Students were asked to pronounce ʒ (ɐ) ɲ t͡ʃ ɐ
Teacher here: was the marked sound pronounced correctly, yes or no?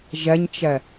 yes